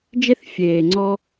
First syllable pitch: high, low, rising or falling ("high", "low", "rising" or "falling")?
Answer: high